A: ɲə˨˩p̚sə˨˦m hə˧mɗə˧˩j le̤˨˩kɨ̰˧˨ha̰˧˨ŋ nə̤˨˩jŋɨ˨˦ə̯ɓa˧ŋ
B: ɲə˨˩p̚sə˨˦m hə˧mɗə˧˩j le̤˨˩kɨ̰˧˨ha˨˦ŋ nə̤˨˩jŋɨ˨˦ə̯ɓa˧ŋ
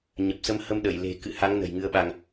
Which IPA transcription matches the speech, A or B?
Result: B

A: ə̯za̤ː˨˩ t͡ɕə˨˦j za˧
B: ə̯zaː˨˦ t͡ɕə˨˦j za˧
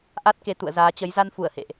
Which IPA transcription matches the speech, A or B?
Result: B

